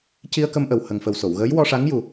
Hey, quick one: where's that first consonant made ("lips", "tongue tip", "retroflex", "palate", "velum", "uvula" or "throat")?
palate